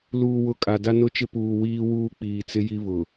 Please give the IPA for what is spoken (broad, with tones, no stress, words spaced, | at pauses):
luː˨wʊ˨ kʼa˨da˦nʊ˦t͡ʃɪ˦ puː˨wiː˦wuː˦ k͡piː˨t͡sɪ˦ji˦ βʊ˨